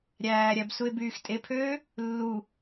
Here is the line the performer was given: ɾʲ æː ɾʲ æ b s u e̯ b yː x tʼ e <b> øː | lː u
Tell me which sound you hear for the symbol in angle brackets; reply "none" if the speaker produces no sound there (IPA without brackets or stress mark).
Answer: pʰ